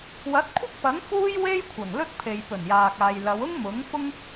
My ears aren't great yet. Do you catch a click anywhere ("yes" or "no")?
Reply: no